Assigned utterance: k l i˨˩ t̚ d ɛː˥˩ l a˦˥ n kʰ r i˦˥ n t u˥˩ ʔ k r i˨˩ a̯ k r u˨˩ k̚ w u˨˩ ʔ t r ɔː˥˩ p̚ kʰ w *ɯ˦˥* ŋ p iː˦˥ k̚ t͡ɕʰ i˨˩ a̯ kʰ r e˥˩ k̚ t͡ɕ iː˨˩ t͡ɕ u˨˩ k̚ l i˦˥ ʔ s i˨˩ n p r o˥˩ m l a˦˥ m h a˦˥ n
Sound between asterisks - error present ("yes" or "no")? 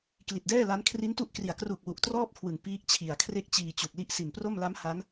yes